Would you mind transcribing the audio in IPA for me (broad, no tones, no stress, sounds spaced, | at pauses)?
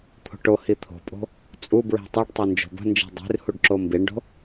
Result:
t̪ʰ o̤ ʈ o h i t̪ʰ o̤ pʼ o̤ | t͡sʼ u b ɹ i̤ tˤ i ɖ tˤ u n d͡ʒ o̤ b ə̤ n d͡ʒ i̤ dˤ i̤ r h u ɖ ǁ o m b i ɳ ɖ o̤